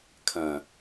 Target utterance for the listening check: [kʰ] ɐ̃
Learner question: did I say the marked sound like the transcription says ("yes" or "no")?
yes